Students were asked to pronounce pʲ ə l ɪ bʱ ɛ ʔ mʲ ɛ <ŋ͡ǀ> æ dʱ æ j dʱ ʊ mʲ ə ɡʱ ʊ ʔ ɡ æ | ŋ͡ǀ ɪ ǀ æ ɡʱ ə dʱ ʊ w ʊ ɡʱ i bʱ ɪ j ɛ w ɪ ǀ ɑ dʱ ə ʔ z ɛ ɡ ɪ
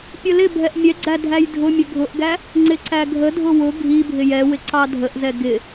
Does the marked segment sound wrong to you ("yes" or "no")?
yes